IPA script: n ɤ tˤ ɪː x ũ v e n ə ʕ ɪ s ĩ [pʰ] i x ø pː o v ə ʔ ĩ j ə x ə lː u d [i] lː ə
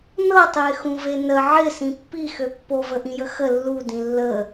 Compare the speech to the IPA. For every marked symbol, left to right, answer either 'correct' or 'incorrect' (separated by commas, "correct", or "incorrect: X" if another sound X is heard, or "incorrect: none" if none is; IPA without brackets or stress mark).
incorrect: pː, incorrect: ĩ